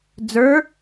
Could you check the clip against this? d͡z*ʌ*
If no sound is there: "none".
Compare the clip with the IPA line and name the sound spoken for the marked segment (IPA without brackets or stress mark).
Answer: ə˞